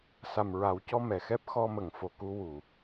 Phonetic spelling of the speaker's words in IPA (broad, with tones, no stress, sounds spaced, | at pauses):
s a˨˩ m ɹ a˨˩˦ w c ɔ˧ m ɛ˨˩˨ x ɛ˦˥ p̚ x ɔ˧ m ə˨˩˨ ŋ f o˨˩ k u˧ w u˨˩˨